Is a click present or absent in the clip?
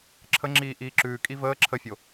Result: present